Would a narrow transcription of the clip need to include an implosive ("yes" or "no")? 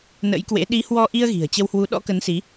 yes